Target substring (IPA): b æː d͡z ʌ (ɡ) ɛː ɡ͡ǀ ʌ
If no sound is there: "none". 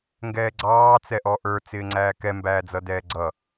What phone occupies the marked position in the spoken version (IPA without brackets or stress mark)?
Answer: d